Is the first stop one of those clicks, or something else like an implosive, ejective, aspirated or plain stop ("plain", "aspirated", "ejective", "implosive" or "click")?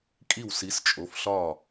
ejective